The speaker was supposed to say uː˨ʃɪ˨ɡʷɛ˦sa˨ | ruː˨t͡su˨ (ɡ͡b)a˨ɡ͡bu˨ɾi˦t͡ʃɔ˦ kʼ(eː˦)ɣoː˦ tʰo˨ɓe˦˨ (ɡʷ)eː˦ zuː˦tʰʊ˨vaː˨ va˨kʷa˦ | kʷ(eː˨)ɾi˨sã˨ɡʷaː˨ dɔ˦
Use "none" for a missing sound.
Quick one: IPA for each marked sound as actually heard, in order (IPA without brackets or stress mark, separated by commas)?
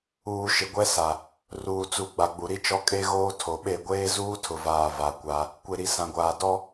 ɡ͡b, e˦, ɡʷ, e˨